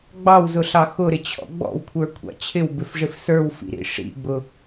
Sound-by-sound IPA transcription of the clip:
ɡ͡b ɑ w z ʊ ɬ ɑ x ʊ ɾ ɪ t͡ɕʰ ɔ̰ ɡ͡b ɔ̰ w kʷʰ ə˞ kʷʰ ɑ̰ t͡ɕʰ ɪ w b ɪ f ʐ ɪ f s ə˞ w f ḭ ɾ ḭ ʂ ḭ ɡ͡b ʊ

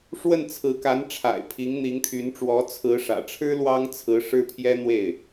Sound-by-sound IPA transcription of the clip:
ʂ w ə˥˩ n t͡sʰ ɹ̩˧˥ k a˧˥ n ʈ͡ʂʰ a̰˨˩ ɪ̯ pʰ i˧˥ ŋ n̪ i˧˥ ŋ t̪ʰ y˧˥ n ʈ͡ʂ w ɔ˧˥ t͡sʰ ɹ̩˧˥ ʂ ä̰˨˩ ʈ͡ʂʰ ɻ̩˥ l w ɑ˥ ŋ t͡sʰ ɹ̩˧˥ ʂ ɻ̩˥ pʰ j ɛ˥ n̪ w e˥˩ ɪ̯

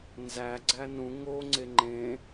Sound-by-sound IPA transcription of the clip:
n z æ ɡ͡ǀ æ n ũ ŋ o ŋ͡ǀ e ŋ͡ǃ ẽ

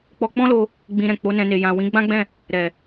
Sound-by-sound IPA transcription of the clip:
k͡p ɔ˧ k͡p ɔ̃˦ l o˧ | ɡ͡b ĩ˧ ɾ ɛ̃˨ k͡p o˨˦ n ɛ̃˧ n e˨ j ã˨ w ĩ˨˦ ɡ͡b ã˦ ɡ͡b ɛ̃˦˨ | ɾ ɛ˨

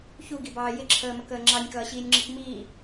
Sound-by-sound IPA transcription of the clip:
ç u ɡ i b ɑː j ɪ ǁʰ əː m ə k əː ŋ͡ǁ ɑ nʲ k ʌː ɕ iː nʲ ŋ͡ǁ i k m iː

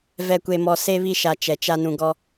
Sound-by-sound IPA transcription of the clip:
v ɛ˨ kʷ e˨ m ɔ˨ s e˦ β i˦˨ ʃ a˨ t͡ʃ ɛ˨ t͡ʃ a˦ n ũ˨ ɡ ɔ˦

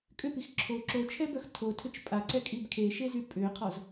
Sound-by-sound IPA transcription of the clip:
kʼ ʏ p i x ǁʰ o ǁ o t͡ʃʰ ɛ b œ x tʰ o tʰ ʏ t͡ʃ pʼ a ǀ ɛ kʼ i b kʰ e ʃ e z y pʼ ʏː qʰ ɔ z

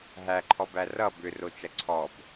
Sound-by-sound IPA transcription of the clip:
ɦ æ ǃʰ ɔ b æ r ʌ b ʏ r o t͡ʃ ɐ ǀʰ ɔ b

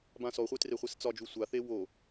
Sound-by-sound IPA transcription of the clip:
b ã s ɔ χʷ e t r e χʷ e s t͡s ɒ d͡ʒ u sʷ a θ e w o

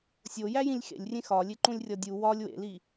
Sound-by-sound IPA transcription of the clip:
sʲ o j æ j ĩ lʲ x ḛ lʲ rʲ ẽ x ɒ lʲ e ǃ ũ lʲ rʲ ɒ dʲ u w ɒ lʲ w ḛ l i

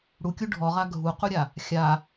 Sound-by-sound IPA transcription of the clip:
ɽ u kʲ u ɖʱ ɔ ʁ a ɡʱ u q u ɾʲ a | xʲ a

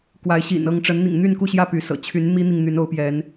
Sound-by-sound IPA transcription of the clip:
k w a˨˦ ɪ̯ ɕ ḭ˨˩ n ɤ˥˨ ŋ ʈ͡ʂ ə˨˦ n n̪ ḭ˨˩ ŋ n̪ y˥˨ n k u˥˨ ɕ j ä˥˨ p y˨˦ s ɤ̰˨˩ t͡ɕʰ y˨˦ n m i˦ n̪ i˨ ŋ n̪ y˨˦ n o˨˦ ʊ̯ p j ɛ˨˦ n

